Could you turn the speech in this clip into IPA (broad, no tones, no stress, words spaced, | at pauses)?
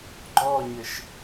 ɡ͡ǃɔɲɘʃ